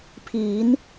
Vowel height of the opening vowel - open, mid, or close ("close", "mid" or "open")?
close